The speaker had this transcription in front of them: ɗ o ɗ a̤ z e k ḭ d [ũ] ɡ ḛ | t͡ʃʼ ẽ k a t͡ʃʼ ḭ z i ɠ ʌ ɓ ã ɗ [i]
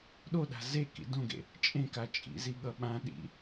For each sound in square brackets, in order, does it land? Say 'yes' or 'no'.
no, no

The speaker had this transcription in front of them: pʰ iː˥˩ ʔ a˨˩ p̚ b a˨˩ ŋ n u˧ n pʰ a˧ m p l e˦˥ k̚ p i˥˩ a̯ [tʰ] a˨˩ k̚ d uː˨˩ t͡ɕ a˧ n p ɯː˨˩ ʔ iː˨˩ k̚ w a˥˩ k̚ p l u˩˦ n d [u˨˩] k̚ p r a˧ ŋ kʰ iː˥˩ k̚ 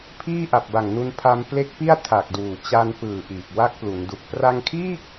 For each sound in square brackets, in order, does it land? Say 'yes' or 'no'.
yes, yes

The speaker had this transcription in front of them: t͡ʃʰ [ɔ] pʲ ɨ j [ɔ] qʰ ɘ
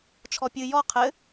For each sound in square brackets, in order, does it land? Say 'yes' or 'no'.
yes, yes

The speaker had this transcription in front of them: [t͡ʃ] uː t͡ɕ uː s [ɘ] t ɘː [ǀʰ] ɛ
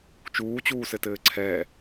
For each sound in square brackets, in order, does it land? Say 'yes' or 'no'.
yes, yes, yes

